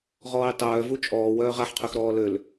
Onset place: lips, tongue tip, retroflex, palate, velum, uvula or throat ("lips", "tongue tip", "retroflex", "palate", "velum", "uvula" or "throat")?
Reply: uvula